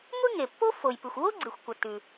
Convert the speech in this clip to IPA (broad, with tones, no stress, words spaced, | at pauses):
ŋʷi˥ŋe˩pːo˥ fo˩jpɨ˩xʷ wo˥ɡ͡ǀi˩xʷkʷɐ˩ tʉ˩